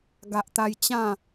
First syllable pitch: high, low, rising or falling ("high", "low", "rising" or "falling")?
low